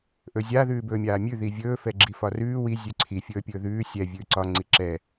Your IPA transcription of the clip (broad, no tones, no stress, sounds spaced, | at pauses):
ʔ ɵ zʲ a ð ʉː b ɵː mʲ aː mʲ ʉ ð i vʲ ɵː f ɛ ɡ͡ǁ i f ɒ r ʉː w i zʲ ʉ ǀʰ i fʲ ɵː pʲ ɵː ð ʉː sʲ ɛ vʲ ʉː ǀ ɒ ŋ͡ǀ i ǁ ɛ